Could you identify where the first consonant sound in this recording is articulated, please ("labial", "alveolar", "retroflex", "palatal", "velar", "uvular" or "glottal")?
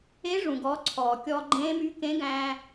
retroflex